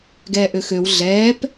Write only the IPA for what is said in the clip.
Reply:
ɡɛːʔøxøw ɮɛːp

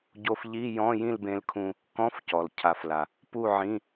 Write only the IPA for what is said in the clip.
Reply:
ɟo˧fʎi˧˥˧ jɔ̃˧˥˧jĩ˥˨lbẽ˧lkʰũ˧ | kɔ̃˧˥˧fcɔ˩l cʰa˩˧fla˩ | pu˥˨ʕĩ˧˥˧

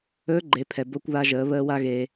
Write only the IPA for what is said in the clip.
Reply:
ɵː˧˥ɡ͡ǃe˩˧pʰɛ˩ bo˧kʷβa˧ʒəː˩˧βəː˧ wa˥ɣe˧

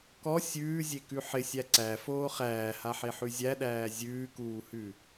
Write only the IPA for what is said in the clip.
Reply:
kɔ sʲʉːzʲekʉ ħɪsʲæ ǀæfoː χæːhaħeħʉ zʲæɗæː zʲʉːkuːhʉ

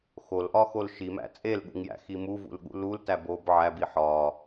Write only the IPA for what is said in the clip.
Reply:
xolʔɒxol ʃimæ̰ t͡sʼelɠṵŋjæ̰xi muvṵlɠṵ lultæb ob ʕæbi ħɒ

